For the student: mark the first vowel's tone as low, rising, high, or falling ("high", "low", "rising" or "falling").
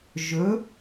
rising